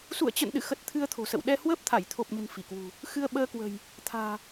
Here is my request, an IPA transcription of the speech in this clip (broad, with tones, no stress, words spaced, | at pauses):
sṵ˧˨ə̯t͡ɕə̰˧˨nɗɨ̰˧˨xə˨˩t̚ t̪ʰɨ˧ə̯t̪ʰo̤˨˩sə̰˧˨w ɗɛ˧hwəː˦˥p̚t̪ʰa˧˩j t̪ʰo˨˩p̚ɲə̤˨˩n fi˧˩kwṳ˨˩ | xɨ˧ə̯ɓəː˧kwə̤˨˩j | t̪ʰa̤ː˨˩